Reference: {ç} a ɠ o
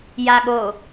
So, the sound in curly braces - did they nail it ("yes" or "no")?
no